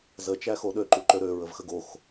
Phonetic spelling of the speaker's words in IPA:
z ə t͡ʃ æ x o ɗ ø ǃ u ǃ ø ɾ ø ɹ ə v x ə ɡ o x

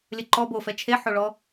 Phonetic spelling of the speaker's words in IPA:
lʲ ə ǃ ɔ b o f ɛ t͡ʃʰ e ħ o ɭ ɔ

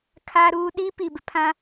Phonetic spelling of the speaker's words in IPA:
kʰ aː˦ ɾ uː˦ ɗ i˦ p i˨ b ɪ˨ pʰ ã˦

